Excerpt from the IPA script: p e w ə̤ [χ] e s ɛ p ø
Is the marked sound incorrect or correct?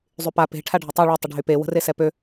incorrect